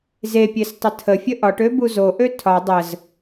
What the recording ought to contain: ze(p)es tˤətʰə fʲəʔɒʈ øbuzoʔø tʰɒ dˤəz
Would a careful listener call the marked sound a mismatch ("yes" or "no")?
yes